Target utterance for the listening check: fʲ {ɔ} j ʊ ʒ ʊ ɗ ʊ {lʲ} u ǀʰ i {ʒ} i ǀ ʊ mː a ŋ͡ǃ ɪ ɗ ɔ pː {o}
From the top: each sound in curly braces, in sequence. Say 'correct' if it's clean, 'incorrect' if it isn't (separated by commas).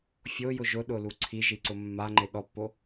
incorrect, incorrect, correct, correct